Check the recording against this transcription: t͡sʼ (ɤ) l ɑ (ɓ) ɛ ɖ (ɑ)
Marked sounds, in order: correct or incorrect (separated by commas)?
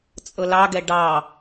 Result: correct, incorrect, correct